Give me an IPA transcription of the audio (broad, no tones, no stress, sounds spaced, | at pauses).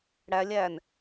ɽ æ lʲ æ n